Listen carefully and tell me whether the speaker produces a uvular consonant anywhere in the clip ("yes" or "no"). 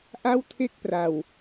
no